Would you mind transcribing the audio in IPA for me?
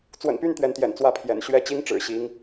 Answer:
t͡swə̰˨˩npy˥˩n t̪ɥɛ˧˥nt̪jɛ̰˨˩n t͡swä˥˩pʰjɛ̰˨˩n ɕɥɛ˥˩t͡ɕi˥ŋ ʈ͡ʂɻ̩˨˩ɕi˧˥ŋ

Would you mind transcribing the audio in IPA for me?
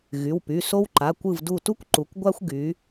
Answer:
ɣy˩˧˩wpy˩˧˩ so˦wǃa˩˧˩ kʷɯ˧˩vdu˧˩tu˦kʷ ǃu˩˧kʷɡʷa˦xʷɡy˩˧

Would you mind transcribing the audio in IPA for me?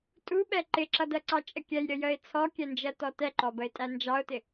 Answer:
tʼuɓɛ ǃɪǁʌdɜǀɑ t͡ʃʼəkʲɛj ɾʲəjəɪ̯ t͡sʰɔkʲɛnd͡ʒɜtɔ tɛǃɔbəɪ̯tʼæ nd͡ʒɑʊ̯tɪ

